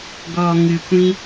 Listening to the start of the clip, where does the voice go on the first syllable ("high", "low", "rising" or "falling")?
low